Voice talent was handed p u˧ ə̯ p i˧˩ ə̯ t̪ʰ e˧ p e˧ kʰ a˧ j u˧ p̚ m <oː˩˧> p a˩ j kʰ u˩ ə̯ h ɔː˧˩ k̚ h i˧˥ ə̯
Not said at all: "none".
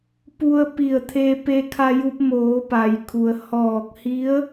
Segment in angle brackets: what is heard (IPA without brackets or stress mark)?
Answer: oː˩˧